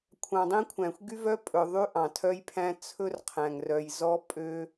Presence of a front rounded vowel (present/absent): present